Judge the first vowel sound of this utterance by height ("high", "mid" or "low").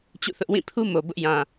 high